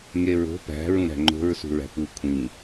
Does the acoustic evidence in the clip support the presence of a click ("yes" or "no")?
yes